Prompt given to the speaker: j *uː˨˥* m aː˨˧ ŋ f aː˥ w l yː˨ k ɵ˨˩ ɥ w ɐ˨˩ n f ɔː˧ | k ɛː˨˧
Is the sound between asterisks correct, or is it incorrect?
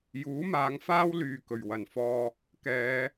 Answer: correct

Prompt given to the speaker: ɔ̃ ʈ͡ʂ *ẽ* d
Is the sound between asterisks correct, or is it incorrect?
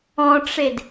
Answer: incorrect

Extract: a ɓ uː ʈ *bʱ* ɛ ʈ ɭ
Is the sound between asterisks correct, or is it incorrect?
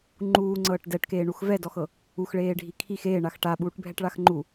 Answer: correct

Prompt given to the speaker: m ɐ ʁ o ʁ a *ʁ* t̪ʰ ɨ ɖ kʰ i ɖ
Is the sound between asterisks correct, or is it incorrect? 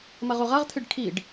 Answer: correct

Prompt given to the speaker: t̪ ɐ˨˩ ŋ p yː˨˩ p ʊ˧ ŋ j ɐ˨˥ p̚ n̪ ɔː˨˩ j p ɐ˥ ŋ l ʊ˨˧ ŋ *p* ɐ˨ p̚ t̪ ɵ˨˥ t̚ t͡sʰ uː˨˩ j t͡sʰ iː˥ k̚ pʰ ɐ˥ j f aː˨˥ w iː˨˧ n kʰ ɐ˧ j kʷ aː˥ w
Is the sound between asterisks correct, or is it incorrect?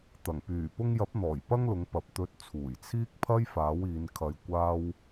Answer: correct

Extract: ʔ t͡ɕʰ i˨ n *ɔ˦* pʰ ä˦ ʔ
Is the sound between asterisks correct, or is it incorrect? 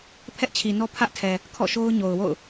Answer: correct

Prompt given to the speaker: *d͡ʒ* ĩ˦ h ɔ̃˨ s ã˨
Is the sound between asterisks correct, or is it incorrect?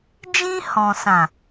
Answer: correct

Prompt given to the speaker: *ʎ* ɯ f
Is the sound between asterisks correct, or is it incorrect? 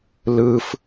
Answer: incorrect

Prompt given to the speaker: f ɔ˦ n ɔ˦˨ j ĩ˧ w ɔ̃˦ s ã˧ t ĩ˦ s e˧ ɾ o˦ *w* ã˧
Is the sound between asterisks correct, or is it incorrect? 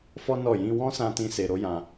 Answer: incorrect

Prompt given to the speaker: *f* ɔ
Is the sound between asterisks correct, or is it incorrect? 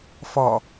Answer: correct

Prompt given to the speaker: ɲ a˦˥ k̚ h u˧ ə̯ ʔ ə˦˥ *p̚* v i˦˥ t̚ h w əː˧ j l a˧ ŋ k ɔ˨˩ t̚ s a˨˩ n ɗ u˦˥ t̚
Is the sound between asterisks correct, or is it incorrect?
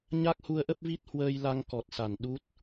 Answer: correct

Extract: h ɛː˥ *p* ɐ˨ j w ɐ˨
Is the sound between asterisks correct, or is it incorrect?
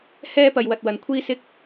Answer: correct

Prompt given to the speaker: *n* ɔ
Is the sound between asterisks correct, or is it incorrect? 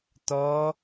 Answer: incorrect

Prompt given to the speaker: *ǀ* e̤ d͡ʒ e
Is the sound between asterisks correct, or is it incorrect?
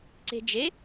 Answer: correct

